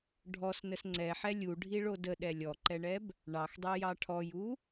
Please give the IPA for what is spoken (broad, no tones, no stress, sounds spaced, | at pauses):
ɖʱ ɔ s n ə s ŋ͡ǀ ɛ ħ ɛ lʲ u ɖʱ i ɭ o d ə ɗ ɛ lʲ ɔ ǃ ɛ ɳ ɛ b | ɳ ɑ x dˤ ø j ɑ ʈʰ ɔ j u